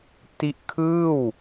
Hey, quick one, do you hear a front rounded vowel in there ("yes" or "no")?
no